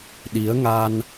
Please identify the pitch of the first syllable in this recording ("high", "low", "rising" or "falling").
rising